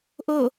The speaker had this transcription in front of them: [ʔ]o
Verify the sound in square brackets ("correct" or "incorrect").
correct